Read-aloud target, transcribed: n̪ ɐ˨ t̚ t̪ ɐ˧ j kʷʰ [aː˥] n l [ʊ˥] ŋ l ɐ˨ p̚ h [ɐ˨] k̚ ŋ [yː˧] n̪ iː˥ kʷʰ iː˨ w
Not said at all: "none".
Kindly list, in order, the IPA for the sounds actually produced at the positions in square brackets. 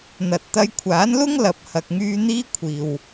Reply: aː˨˥, ʊ˥, ɐ˨, yː˧

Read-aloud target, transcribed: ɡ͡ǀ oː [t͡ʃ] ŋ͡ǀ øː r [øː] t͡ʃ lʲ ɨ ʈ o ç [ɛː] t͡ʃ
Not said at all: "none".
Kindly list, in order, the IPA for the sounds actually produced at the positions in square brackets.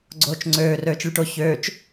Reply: t͡ʃ, øː, øː

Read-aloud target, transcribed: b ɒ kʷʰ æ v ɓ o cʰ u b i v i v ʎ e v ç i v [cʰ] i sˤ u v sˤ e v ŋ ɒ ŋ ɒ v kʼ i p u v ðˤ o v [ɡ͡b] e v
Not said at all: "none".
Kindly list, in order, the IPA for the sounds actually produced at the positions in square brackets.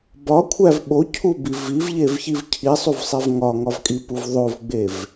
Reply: cʰ, ɡ͡b

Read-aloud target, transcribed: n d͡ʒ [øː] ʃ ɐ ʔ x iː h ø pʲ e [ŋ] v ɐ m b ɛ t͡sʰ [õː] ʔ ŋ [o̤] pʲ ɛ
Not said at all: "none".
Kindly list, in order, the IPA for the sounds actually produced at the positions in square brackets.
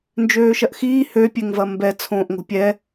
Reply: øː, ŋ, õː, o̤

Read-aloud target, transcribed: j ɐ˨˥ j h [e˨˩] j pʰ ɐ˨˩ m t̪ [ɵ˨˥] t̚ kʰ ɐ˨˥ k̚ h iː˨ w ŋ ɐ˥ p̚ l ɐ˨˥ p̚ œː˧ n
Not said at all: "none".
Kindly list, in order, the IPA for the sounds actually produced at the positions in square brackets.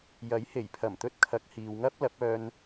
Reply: e˨˩, ɵ˧

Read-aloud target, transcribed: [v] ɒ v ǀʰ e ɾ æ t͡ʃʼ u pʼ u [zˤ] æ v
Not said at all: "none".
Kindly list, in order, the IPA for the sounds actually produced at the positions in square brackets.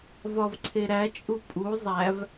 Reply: v, zˤ

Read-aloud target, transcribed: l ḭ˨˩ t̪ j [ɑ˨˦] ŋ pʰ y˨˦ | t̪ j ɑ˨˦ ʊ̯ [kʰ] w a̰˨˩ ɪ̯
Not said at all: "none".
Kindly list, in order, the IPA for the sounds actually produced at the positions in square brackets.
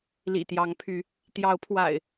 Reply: ɑ˨˦, pʰ

